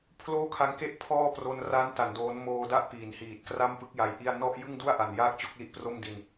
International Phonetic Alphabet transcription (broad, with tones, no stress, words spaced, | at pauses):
pʰloː˥˩kʰa˦˥ŋ ke˥˩ʔpʰɔː˥˩pro˧n ra˦˥n ta˩˦ndoː˦˥n moː˧da˥˩ʔ piː˩˦n hiː˨˩t̚kra˥˩mpɯ˦˥k̚ ja˧jʔi˥˩a̯ nɔ˥˩ʔjɯ˥˩ŋdu˥˩a̯ ʔa˨˩njaː˥˩k̚t͡ɕo˥˩k̚ li˦˥ʔpro˥˩mdi˧n